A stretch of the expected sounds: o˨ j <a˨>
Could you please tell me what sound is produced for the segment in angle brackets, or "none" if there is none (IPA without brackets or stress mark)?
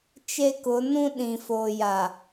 a˨